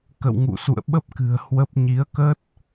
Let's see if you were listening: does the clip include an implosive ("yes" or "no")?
yes